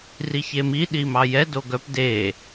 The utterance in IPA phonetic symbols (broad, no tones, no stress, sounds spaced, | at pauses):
r i ç e m i ɗ i m ɑ j ɛ d o ɡ œ p d e